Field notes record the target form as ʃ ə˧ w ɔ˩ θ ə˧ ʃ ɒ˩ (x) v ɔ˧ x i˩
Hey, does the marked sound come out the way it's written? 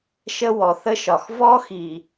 yes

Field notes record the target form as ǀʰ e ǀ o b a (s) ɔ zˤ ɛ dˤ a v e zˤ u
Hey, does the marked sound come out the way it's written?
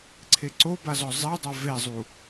no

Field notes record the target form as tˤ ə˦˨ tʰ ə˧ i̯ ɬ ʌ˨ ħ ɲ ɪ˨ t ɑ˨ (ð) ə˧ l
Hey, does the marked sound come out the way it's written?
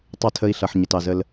no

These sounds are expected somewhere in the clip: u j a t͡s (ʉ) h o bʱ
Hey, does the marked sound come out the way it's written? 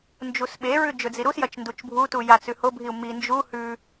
yes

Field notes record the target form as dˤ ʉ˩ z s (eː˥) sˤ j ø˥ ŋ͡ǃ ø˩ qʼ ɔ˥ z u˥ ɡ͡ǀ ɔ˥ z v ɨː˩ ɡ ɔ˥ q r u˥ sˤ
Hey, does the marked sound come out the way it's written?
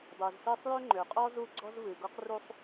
no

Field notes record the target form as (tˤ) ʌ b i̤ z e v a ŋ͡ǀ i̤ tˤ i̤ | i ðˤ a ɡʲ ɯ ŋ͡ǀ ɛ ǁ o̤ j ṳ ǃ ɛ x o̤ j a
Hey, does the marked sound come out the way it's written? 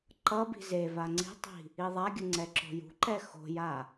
no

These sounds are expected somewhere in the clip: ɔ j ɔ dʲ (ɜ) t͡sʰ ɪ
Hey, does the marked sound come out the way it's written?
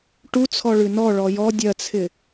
yes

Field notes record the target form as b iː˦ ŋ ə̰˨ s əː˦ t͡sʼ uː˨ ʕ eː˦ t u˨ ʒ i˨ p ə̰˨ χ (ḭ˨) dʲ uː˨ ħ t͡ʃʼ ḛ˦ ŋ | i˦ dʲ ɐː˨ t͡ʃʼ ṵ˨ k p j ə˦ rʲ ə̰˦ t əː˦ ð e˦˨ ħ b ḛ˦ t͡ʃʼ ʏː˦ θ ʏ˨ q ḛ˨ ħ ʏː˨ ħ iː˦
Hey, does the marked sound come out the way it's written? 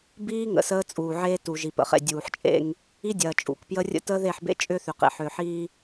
no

